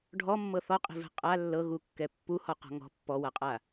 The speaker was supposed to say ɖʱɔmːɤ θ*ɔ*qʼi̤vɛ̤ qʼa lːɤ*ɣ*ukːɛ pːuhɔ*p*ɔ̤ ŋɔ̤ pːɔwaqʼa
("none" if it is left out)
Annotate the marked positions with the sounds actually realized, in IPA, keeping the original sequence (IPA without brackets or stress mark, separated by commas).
ɔ, ɣ, q